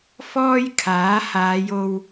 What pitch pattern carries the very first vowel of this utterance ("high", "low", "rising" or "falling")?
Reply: high